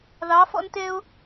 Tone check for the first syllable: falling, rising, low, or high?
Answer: rising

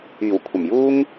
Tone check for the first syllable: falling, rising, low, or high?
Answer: low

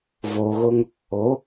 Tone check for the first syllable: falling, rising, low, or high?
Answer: low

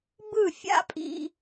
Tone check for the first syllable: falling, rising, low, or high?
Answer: falling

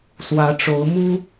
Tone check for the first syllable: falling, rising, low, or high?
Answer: rising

